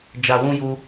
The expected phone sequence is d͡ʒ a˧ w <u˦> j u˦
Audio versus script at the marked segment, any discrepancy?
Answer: yes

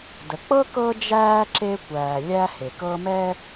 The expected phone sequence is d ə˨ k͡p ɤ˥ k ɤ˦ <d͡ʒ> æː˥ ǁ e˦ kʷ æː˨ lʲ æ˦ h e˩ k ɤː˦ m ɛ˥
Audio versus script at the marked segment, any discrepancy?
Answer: no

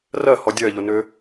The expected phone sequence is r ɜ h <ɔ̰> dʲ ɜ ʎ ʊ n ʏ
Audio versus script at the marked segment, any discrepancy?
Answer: yes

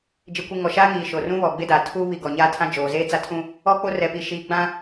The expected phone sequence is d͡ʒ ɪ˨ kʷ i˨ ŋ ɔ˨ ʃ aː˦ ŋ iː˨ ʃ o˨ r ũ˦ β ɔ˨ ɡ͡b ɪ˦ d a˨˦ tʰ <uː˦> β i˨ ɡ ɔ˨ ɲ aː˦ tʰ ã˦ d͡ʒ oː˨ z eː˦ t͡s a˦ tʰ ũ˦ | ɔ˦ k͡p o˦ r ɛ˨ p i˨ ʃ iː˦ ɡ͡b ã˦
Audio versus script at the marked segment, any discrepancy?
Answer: no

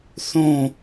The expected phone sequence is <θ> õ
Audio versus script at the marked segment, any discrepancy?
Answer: no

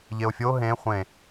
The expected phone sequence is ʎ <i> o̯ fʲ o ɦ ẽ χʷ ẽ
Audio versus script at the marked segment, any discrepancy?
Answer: yes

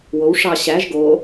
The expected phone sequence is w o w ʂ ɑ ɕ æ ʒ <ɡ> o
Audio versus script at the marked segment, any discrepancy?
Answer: no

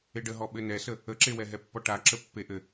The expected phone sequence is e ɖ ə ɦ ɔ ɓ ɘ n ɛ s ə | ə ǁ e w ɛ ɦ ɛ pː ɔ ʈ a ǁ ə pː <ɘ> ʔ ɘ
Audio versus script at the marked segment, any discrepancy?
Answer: yes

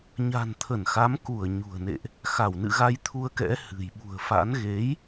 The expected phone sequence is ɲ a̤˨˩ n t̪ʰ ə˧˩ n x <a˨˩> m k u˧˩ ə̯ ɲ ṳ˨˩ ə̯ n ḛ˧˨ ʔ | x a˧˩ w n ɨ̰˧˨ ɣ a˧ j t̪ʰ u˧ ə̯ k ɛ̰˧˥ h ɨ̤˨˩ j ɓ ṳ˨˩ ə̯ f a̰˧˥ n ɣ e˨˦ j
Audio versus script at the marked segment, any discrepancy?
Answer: yes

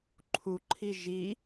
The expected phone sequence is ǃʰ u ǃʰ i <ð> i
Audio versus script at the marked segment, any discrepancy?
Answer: yes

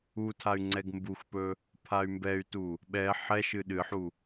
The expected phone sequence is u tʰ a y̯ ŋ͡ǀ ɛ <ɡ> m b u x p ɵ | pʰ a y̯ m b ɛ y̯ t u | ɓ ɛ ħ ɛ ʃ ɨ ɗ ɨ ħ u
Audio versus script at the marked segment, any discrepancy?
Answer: no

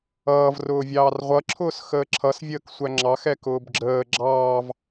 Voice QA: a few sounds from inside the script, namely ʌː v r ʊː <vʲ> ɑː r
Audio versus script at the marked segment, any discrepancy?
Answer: no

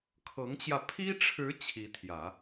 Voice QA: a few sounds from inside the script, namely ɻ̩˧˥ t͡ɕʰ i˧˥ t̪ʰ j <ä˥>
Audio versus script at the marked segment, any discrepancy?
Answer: yes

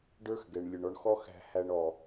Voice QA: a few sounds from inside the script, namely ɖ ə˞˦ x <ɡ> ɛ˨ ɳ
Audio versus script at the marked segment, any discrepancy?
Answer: no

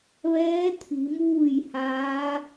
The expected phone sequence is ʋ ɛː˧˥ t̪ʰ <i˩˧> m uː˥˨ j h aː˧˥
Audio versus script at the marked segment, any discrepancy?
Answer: no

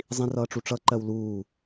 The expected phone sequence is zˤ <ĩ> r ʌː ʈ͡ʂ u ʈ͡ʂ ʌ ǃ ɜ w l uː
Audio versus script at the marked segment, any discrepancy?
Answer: no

